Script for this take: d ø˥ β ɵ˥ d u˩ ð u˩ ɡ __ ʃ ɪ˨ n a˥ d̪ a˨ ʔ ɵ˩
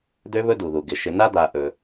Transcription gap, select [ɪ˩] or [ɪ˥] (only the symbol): ɪ˩